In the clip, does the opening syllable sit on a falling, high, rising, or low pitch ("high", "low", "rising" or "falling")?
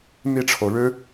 falling